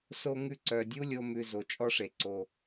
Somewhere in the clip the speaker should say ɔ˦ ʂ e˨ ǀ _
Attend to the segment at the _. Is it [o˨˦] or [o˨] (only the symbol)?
o˨